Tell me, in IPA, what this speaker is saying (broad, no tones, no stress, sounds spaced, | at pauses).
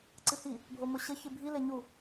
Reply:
ǀ ɨ h i | bʱ o m o ɕ ɘ ç ɨ bʱ i l e ɲ u